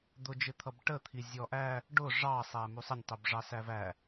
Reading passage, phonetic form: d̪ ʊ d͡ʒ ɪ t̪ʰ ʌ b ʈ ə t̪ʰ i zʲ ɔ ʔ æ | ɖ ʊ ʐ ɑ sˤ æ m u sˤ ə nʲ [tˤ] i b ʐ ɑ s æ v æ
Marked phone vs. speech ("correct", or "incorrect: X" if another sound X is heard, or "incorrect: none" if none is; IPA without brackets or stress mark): correct